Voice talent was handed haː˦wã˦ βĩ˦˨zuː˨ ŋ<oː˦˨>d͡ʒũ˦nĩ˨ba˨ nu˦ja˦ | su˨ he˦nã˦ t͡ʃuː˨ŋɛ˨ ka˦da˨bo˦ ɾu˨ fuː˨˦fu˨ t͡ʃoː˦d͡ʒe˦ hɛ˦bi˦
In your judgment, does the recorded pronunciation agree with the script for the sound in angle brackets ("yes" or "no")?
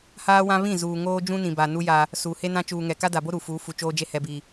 no